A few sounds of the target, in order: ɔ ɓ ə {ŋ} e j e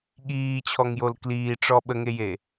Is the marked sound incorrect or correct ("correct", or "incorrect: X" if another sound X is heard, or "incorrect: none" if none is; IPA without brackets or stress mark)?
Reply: correct